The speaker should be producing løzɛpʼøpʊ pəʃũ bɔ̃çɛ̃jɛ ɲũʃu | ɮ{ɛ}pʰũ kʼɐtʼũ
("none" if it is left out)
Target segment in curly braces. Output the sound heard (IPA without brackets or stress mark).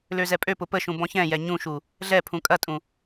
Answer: ɛ